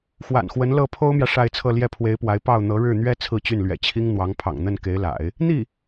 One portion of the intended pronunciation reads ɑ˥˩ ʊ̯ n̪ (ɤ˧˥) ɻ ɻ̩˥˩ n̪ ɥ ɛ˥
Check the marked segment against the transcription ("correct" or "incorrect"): correct